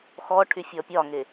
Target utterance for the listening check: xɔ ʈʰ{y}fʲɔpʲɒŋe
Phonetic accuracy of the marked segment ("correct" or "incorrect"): correct